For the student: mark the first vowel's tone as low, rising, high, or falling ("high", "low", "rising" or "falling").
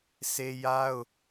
high